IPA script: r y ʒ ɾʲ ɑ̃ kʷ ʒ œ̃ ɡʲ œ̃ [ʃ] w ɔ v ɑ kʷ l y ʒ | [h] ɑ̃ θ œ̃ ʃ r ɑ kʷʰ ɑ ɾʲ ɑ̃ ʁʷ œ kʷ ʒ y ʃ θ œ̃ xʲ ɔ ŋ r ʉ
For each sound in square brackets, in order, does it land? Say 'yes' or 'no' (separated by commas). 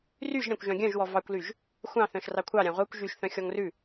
no, no